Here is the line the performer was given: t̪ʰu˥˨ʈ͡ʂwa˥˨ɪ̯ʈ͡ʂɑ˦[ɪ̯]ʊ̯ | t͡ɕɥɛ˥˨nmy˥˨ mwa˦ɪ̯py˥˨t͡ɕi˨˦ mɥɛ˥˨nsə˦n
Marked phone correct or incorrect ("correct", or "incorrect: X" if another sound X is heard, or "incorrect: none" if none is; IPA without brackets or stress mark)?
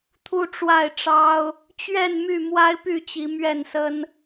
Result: incorrect: none